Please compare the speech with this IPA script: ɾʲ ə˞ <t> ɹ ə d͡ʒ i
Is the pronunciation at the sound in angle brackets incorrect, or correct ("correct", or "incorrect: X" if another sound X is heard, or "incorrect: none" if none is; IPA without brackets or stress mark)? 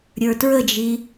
correct